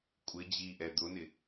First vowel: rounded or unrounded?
unrounded